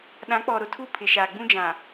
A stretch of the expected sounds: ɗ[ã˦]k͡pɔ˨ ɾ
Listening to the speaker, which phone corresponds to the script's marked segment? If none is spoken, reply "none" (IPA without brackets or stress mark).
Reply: ã˨˦